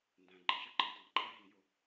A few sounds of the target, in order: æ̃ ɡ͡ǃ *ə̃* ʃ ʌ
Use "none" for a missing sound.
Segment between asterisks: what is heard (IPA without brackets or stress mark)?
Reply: ə̃